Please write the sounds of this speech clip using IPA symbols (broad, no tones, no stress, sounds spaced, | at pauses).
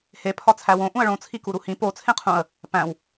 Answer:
h e pʰ ɒ t͡sʰ æ w õ ʔ ũ ə̯ ɭ õ t͡sʰ i k u ɾ u h ĩ p o t͡sʰ ẽ qʰ ũ ə̯ | p æ̃ w